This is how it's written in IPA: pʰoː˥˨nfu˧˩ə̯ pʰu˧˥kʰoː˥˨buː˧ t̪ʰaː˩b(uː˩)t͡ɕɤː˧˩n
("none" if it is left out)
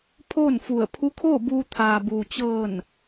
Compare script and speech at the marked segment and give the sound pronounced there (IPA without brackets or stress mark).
uː˩